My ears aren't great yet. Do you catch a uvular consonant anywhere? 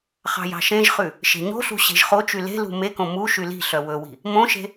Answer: yes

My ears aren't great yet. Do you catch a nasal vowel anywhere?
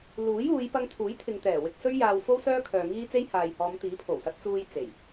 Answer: no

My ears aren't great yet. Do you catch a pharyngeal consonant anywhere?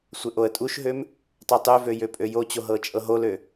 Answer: no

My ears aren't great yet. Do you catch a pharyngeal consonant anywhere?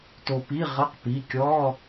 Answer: no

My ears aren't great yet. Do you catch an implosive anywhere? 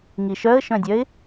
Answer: no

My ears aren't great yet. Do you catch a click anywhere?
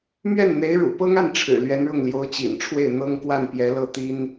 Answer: no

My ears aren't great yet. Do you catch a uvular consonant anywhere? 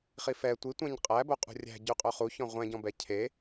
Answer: yes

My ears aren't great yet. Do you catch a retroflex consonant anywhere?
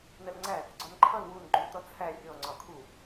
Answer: no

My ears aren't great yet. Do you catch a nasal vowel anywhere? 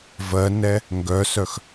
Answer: no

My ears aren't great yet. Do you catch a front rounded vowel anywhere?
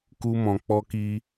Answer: no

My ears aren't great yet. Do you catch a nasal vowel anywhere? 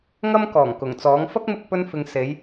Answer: no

